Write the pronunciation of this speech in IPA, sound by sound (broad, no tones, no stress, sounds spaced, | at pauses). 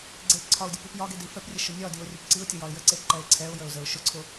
ɡ͡ǀ e p ǀʰ ɒ ʊ̯ dʲ ə p i p j ɒ ɡ e d i f ɛ p rʲ ə ʃ ʊ nʲ ɒ d i ʊ̯ rʲ ʊ p ǀ i ʊ̯ tʲ ʊ j ɒ ɪ̯ j ə ǀ e p ǃ ɛ ɪ̯ ǀʰ ɛ ʊ̯ j ə ʊ̯ z ə ʊ̯ ʃ ʊ ǀʰ ʊ